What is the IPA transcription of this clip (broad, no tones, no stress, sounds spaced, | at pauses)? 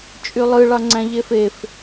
t͡ʃʼ y lˠ ɯ ɭ ɑ ŋ͡ǀ æ̃ ʎ e f e f